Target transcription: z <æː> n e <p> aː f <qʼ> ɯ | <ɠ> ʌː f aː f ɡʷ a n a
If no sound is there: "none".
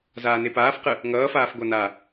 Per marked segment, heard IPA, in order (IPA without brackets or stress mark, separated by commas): aː, p, q, ŋ